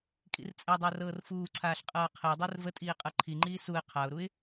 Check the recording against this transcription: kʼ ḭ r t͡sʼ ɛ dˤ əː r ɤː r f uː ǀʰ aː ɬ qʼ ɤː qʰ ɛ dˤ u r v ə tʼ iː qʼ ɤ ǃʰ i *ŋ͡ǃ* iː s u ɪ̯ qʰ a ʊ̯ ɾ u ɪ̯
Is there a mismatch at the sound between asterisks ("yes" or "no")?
no